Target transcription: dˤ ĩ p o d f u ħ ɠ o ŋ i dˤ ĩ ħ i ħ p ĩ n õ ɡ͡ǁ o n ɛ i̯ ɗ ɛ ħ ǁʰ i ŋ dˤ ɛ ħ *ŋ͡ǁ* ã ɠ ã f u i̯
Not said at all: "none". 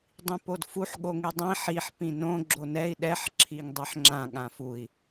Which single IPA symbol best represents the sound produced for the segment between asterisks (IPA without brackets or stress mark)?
ŋ͡ǁ